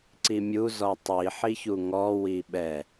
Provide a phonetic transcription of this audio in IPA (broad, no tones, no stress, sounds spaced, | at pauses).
ǀ i mʲ u z ɔ tˤ i ħ i ç u ŋ ɔ w i ɓ ɛ